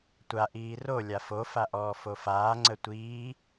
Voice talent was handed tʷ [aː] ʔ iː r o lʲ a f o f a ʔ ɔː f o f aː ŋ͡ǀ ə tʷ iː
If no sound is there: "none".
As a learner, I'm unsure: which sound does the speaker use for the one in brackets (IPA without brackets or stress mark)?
a